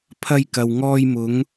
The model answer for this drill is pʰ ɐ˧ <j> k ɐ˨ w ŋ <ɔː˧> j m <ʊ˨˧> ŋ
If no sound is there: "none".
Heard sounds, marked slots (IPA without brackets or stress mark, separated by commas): j, ɔː˧, ʊ˨˧